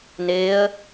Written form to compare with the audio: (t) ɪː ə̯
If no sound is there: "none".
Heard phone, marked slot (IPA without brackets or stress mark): n